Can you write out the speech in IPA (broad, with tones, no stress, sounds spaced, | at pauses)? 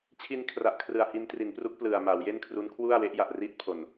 t͡ɕʰ i˧ n kʰ r a˨˩ ʔ kʰ r ɯ˨˩ a̯ h i˧ n t r i˩˦ n p r u˦˥ k̚ p l ɯ˨˩ a̯ m a˩˦ w j e˥˩ n kʰ r u˦˥ n kʰ w u˥˩ a̯ w e˦˥ ʔ j a˨˩ ʔ r i˥˩ t̚ pʰ o˨˩ n